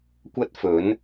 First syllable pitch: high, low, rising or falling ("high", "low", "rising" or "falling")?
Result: high